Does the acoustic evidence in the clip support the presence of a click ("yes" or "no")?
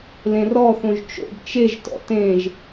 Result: no